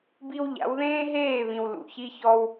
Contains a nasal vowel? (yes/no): yes